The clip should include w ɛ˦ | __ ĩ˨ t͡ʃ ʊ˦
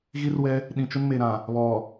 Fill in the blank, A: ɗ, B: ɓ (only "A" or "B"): A